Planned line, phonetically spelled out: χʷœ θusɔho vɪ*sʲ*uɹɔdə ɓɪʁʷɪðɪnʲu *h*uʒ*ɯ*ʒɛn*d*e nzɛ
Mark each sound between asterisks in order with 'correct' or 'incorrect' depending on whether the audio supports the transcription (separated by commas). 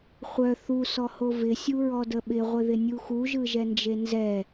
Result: correct, incorrect, correct, incorrect